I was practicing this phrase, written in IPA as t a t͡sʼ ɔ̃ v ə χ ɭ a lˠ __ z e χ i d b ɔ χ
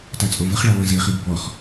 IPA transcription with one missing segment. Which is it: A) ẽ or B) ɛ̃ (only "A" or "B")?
B